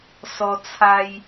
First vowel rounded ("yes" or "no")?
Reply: yes